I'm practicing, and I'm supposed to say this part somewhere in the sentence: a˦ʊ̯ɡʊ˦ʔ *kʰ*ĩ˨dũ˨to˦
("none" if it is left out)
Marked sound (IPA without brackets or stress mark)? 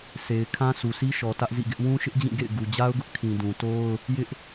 kʰ